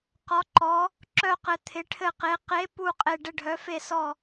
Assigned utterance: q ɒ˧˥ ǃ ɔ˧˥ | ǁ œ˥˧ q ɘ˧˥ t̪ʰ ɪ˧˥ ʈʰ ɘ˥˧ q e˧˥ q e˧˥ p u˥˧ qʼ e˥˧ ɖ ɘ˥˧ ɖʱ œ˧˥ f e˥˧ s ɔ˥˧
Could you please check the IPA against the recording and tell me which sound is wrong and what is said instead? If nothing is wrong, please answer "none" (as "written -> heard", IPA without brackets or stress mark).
none